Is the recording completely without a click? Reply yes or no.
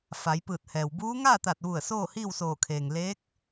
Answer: yes